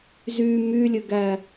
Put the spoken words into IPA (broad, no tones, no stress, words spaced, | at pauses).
zy mylʲøɡæ